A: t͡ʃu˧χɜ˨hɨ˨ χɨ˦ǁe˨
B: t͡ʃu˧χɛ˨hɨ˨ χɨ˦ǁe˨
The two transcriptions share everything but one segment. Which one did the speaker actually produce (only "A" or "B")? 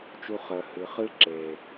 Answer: A